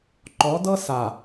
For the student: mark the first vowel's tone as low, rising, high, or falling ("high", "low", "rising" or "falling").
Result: rising